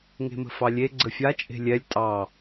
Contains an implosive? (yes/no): no